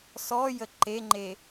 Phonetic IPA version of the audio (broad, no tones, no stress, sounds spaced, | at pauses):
s ɔ j ə ǃ e ŋ͡ǃ e